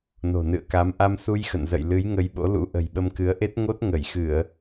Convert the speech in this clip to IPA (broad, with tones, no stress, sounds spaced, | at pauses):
n o̤˨˩ n ɨ̰˧˨ ə̯ k a˨˦ m ʔ a˧ m s u˧ j x ə̰˧˨ n z ə̰˧˨ j l ɨ˨˦ j ŋ ə˧ j ɓ o̰˧˥ l ṵ˧˥ ʔ ə̤˨˩ j ɓ ə˧ m k ɨ˨˦ ə̯ ʔ e˦˥ t̚ ŋ o˦˥ t̚ ŋ ə˧˩ j x ɨ˧˩˨ ə̯